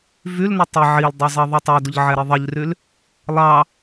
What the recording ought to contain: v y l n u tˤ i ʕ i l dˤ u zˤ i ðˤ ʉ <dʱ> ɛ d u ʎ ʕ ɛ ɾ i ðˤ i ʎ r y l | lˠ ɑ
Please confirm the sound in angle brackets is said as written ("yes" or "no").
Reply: no